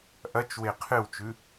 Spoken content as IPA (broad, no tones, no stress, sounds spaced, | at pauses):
ʔ ɐ t͡ʃ w e qʰ ɨ w t͡ʃ ʉ